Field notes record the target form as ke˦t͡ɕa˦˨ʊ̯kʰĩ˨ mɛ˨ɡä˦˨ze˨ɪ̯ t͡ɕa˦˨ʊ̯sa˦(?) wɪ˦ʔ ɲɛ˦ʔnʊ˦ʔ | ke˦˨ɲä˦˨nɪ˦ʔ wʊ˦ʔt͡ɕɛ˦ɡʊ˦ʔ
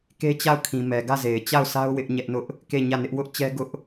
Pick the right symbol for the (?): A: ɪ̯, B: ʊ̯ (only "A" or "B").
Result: B